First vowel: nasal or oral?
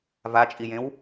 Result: oral